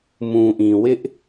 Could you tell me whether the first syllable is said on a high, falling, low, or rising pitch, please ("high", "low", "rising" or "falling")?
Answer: low